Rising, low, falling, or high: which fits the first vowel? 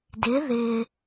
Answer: rising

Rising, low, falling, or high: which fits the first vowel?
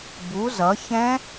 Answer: rising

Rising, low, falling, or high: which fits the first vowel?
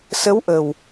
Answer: rising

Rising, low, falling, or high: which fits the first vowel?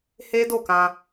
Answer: high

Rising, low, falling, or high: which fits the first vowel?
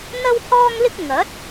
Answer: high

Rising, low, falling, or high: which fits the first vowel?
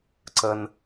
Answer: low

